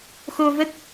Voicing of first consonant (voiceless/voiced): voiceless